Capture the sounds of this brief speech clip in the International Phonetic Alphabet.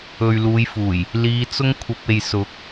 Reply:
ɵ˨ ɥ l uː˨˧ j f uː˨˩ j | l iː˨˧ t͡s ʊ˥ ŋ kʷʰ ɐ˧ p̚ e˨ j s ʊ˨˥ k̚

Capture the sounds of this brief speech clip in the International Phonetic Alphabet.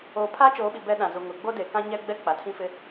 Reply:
oː˨ pʰ aː˦ t͡ʃ oː˨˦ ɓ i˨ b ɛ˦ ɗ ã˨ z u˨ ŋ ʊ˨ ɡ͡b o˦ d e˨ k ã˦ ɲ ɛ˦ ɡ͡b ɛ˦ k͡p a˨ tʰ ĩ˦ f ɪ˦

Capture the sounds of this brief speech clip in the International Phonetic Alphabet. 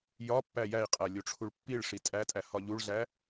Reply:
j ɒ pː æ j æ i̯ qʼ æ lʲ o ʈ͡ʂʰ u ɭ pː i ɭ ʂ i tʼ æ tʼ æ h ɒ ʎ u ɭ ɮ æ

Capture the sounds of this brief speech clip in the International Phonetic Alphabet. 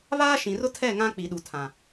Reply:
β aː˦ ʃ ĩ˨ r ʊ˦ tʰ ɛ˦˨ ŋ ã˦ k͡p i˨ ɗ u˨ tʰ ã˨

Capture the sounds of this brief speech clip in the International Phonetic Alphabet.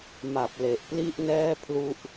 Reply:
m a˨˩ p̚ l e˨˩ ʔ p l i˥˩ ʔ n ɛː˥˩ pʰ l u˥˩ ʔ

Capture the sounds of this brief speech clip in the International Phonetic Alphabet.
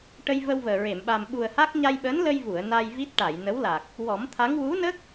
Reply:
ʈ ə˧ j v ə˧ w v əː˨˩ ɹ e˨˩˨ m ɓ a˨˩ m ɓ u˨˩ ə̯ h a˦˥ k̚ ɲ a˧ j ɓ əː˧˥ n l ə˧ j v u˨˩˨ ə̯ n a˧ j v i˦˥ t̚ ʈ a˨˩˨ j n ə˧˥ w l a˨˩ k̚ | w ɔ˨˩˦ m t̪ʰ a˧˥ ŋ w u˧˥ n ə˦˥ k̚

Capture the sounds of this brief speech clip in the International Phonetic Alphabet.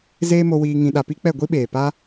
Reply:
z eː˦ m o˧ w iː˧ ŋ ĩ˧ ɗ a˧ p i˦ k͡p ɛ˦˨ ɡʷ i˦ ɓ eː˨ p a˦

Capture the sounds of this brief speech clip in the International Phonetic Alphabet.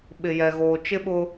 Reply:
ɓ ɪ˨ j ɛ˨ ɣ oː˨ t͡ʃ ɪ˦ ɓ ʊ˦

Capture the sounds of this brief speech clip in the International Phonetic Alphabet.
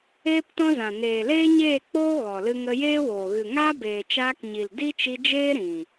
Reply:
eː˦ p t ɔ̃˦ z ã˨ n eː˨ l eː˦ ɲ eː˦˨ k͡p oː˦ ɣ ɔ˨ l ɨ˧ ŋ ə˧ j eː˦ w oː˨ ɣ ɨ˨ ŋ aː˦ b eː˨ t͡ʃ aː˧ k ɲ i˨ l d i˦ t͡ʃ i˧ d͡ʒ eː˦ ɾ ĩ˨

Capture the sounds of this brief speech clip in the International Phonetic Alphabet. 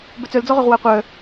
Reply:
b œ t͡s œ l d͡z ɔ ʁ ø ʁ w a qʷ œ

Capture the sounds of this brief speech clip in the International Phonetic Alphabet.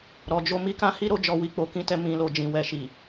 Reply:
ɾ ɔ˧ d͡ʒ o˦ m i˦ k ã˦ h i˦ ɾ o˧ d͡ʒ ɔ˨ w i˧ k͡p o˧ k ĩ˦ t ɛ˧ m ĩ˨ l o˨ d͡ʒ ĩ˨ w ɛ˨ ʃ i˨

